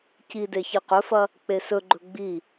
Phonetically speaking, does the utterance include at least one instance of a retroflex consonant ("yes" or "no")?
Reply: no